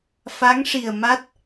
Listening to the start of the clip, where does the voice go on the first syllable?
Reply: rising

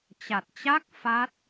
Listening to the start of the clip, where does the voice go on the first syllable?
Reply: low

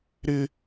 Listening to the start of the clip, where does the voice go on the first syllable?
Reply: high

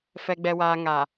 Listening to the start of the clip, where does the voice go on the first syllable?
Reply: low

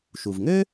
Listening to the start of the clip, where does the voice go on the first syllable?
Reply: low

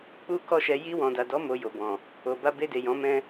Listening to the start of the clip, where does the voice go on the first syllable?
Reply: high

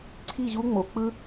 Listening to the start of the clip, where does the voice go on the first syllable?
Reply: falling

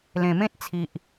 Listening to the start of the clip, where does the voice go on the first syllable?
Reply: low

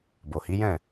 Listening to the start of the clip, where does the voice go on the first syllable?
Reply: low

